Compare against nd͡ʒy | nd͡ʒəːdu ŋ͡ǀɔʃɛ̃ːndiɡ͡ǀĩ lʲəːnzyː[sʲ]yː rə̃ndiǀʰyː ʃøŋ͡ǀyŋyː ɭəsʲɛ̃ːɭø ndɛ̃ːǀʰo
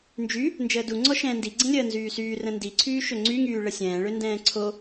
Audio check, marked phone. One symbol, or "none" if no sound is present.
s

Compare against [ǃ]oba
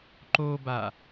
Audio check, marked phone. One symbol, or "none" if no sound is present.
ǃ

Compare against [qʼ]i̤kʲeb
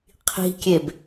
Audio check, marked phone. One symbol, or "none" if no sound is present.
qʰ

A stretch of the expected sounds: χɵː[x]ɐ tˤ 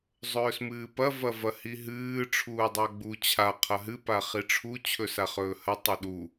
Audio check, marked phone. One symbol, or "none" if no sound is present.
h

